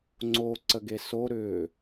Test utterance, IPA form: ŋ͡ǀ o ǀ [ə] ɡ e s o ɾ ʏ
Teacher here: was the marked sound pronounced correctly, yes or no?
yes